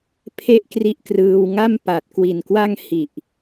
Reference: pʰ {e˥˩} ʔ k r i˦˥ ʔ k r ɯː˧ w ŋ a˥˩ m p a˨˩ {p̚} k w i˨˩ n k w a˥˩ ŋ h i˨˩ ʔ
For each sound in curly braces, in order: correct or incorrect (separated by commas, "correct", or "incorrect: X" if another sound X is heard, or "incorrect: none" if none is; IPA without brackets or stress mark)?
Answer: correct, incorrect: t̚